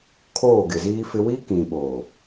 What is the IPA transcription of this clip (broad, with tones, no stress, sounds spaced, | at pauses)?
kʰ oː˦˨ ɡ ɪ˨ z iː˦ f ɪ˦ w i˦ k ĩ˨ ɓ oː˨